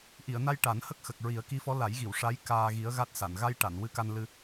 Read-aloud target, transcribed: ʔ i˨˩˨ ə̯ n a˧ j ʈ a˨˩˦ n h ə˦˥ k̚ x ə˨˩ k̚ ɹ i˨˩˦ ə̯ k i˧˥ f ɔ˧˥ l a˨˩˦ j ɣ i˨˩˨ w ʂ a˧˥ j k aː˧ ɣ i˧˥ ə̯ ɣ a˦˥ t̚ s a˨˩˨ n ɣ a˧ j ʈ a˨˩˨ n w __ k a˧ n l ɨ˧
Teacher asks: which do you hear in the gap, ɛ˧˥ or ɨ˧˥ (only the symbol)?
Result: ɨ˧˥